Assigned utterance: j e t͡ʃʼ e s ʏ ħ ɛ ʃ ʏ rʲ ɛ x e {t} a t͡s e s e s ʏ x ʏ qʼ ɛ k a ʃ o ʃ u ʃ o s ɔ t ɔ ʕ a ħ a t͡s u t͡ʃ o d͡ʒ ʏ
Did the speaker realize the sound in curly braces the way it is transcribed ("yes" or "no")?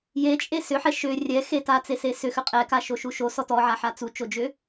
yes